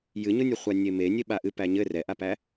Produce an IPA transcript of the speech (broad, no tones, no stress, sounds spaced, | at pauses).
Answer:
j ɨ ɲ ʊ nʲ ʊ χʷ a nʲ e m e nʲ e ɓ a ʔ ɨ p æ ɲ ɘ r ɛ ʔ a p æ